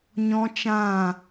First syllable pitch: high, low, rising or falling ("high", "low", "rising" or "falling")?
high